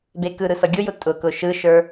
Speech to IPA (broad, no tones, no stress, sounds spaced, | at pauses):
b e k ɯ ɾ ɯ s ʌ ɡʲ ʊ j ʊ tʼ ʊ k ʊ ʃ ɯ ʃ ə˞